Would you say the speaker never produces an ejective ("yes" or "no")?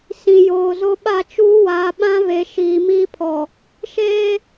yes